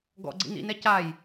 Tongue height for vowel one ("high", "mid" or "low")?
mid